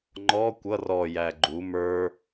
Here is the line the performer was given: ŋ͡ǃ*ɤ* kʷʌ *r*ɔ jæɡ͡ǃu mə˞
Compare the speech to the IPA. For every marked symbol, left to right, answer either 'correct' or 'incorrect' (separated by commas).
incorrect, correct